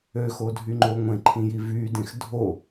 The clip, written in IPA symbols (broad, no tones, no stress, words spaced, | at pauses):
øxodʱyŋ͡ǃo ŋʷẽǃʰĩji vydẽx dʱo